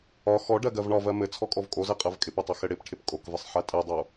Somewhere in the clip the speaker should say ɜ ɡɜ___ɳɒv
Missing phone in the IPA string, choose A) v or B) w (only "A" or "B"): A